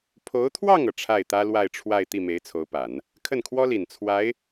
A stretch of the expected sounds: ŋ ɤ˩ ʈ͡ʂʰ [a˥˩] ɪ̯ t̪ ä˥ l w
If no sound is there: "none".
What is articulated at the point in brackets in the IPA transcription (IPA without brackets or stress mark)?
a˥˩